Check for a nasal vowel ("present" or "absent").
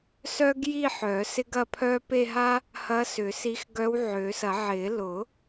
absent